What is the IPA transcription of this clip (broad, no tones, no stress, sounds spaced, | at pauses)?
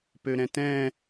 p ø ɾ ɛ̃ t ɛ̃